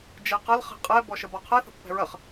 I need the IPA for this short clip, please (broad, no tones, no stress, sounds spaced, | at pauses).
d͡ʒ ɛ q ɐ l χ ɛ̤ qʼ ɛ b ɔ ʃ ə b ɒ qʰ ɛ θ ə̤ pː ɛ̤ ɹ ɐ χ